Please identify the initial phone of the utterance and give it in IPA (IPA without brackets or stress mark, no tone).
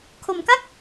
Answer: kʰ